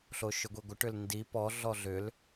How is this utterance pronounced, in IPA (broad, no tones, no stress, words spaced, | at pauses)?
ɬoʃʏɡʷiɡʷə ʈʏlndi pɔ ɮɔɮʏl